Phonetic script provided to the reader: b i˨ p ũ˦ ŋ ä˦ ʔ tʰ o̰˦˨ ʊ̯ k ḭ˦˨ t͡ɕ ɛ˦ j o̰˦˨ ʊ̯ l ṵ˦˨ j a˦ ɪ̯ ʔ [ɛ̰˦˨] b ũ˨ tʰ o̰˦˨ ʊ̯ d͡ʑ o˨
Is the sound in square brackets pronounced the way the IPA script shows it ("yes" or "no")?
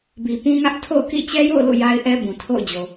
no